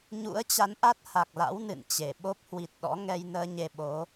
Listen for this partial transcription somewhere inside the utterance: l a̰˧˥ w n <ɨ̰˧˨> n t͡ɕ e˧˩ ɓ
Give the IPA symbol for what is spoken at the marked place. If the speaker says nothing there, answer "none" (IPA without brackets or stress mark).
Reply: ɨ̰˧˨